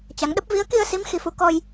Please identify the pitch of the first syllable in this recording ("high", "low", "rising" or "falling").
rising